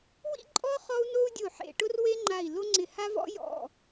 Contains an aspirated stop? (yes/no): no